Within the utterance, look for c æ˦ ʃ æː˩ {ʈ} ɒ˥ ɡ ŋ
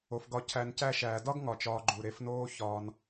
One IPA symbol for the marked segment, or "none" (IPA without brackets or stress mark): d